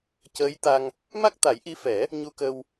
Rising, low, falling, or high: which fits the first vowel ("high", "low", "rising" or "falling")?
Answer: rising